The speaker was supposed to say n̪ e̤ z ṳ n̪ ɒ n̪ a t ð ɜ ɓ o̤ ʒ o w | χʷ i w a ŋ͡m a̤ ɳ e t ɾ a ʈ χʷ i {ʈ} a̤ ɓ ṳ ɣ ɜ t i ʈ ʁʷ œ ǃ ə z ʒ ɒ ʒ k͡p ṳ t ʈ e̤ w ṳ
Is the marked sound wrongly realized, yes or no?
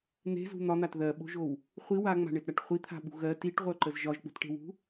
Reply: yes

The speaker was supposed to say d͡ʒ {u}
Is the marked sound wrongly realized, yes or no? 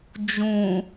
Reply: yes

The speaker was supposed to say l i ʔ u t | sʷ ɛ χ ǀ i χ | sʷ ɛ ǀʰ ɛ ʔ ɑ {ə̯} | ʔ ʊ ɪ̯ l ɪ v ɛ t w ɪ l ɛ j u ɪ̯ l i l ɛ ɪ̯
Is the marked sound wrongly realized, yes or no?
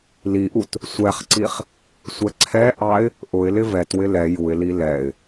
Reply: yes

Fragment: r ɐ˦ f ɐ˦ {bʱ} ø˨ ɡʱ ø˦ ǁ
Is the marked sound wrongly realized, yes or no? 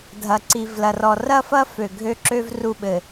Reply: yes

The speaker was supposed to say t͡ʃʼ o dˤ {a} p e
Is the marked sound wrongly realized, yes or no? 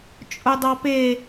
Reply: yes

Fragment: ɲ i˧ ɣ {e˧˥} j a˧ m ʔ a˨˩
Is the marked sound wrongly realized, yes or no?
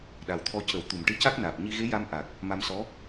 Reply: no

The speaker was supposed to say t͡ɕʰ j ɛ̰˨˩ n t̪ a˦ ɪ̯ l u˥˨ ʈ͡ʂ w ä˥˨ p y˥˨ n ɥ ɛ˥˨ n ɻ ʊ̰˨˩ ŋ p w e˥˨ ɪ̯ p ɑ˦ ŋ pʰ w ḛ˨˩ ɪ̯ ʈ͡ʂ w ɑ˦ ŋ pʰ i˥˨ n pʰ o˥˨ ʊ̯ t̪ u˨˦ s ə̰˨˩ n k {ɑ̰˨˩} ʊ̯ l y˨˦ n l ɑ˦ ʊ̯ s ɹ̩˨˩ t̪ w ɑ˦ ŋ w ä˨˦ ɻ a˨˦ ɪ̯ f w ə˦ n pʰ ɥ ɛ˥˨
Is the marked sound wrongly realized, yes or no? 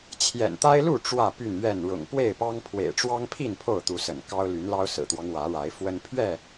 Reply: yes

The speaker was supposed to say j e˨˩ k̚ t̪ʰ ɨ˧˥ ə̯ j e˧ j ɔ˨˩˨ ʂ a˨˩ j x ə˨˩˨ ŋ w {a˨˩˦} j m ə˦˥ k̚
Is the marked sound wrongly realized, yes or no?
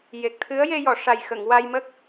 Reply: yes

